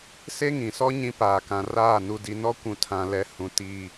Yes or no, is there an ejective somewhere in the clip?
no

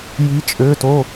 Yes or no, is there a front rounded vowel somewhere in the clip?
yes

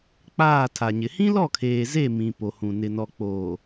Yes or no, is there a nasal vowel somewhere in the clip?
yes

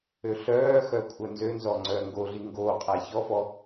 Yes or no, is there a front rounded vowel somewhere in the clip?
yes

